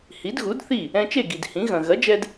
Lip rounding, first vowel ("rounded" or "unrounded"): unrounded